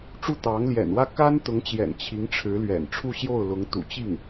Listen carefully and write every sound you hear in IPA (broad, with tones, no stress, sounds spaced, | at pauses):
ʈ͡ʂ u˥˩ t̪ ɑ˧˥ ŋ l j ɛ̰˨˩ n w ä˥˩ k a˥ n t̪ ʊ˧˥ ŋ t͡ɕ j ɛ̰˨˩ n t͡ɕʰ i˧˥ ŋ ʈ͡ʂʰ ɻ̩˧˥ l ɥ ɛ̰˨˩ n ʈ͡ʂʰ u˥˧ ɕ j o˥˩ ʊ̯ l ʊ˧˥ ŋ t̪ ṵ˨˩ t͡ɕ i˥˩ ŋ